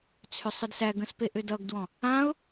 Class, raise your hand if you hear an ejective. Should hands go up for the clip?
no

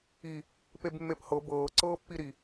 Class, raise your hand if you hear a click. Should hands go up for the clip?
yes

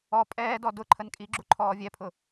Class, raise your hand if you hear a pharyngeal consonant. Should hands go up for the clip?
no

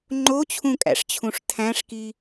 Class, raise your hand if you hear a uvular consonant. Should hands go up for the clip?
no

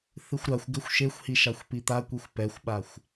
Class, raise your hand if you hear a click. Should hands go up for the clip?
no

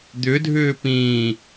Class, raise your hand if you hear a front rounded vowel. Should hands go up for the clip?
yes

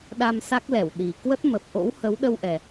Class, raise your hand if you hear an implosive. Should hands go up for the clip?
yes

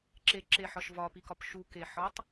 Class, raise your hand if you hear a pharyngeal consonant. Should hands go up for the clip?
yes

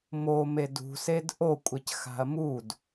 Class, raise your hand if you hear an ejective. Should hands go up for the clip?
yes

